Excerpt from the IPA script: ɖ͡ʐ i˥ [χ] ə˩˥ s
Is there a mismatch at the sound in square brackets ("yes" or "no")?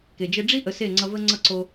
yes